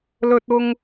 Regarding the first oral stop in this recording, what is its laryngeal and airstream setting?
plain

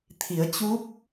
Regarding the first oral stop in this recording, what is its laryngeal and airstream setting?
aspirated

